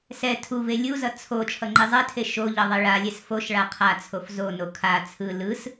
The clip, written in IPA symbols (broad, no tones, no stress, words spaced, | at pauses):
sɛ tʰuve lʲuzʌ t͡sʰo t͡ʃʰʌŋ͡ǃizˤɛtʰe ʃoʎʌ ðˤeɭalʲɛs foʃ ɭaqʰat͡sʰof zono kʰa t͡sʰɯ lɯs